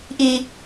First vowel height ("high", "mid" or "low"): high